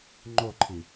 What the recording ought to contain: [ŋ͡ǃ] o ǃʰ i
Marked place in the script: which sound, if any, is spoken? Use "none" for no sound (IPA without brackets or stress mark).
ŋ͡ǃ